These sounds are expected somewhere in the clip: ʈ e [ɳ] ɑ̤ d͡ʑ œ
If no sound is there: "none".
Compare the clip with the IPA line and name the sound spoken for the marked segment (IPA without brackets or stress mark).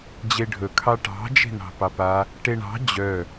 ɳ